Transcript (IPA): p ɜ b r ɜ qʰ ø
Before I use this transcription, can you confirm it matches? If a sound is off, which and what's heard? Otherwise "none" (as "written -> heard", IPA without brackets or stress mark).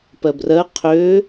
none